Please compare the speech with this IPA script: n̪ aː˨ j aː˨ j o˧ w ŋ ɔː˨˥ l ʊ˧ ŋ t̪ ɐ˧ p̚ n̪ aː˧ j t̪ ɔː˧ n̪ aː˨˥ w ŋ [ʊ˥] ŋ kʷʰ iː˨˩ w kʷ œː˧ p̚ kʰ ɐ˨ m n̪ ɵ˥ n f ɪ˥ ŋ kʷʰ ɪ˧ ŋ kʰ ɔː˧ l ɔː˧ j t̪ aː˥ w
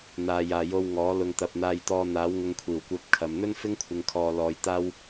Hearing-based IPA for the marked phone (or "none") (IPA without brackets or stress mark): ʊ˧